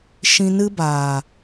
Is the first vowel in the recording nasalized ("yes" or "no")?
yes